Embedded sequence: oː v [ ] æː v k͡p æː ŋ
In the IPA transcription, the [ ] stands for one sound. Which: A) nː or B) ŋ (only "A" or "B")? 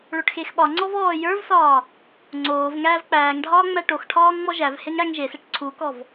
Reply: B